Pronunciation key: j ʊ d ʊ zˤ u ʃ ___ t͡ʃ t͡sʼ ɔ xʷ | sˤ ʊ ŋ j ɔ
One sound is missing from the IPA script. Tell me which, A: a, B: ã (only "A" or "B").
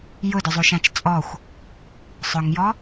B